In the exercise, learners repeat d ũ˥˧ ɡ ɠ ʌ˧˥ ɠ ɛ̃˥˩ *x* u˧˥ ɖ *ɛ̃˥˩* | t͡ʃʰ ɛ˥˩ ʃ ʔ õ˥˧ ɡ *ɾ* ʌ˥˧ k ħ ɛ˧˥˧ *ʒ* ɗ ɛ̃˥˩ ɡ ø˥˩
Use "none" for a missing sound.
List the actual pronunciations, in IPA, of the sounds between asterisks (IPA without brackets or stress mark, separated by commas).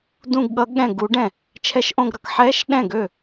ɡ, ɛ̃˥˩, ɾ, ʃ